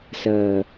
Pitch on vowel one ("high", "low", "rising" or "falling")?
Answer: low